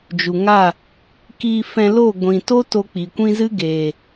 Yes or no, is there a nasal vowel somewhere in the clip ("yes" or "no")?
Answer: yes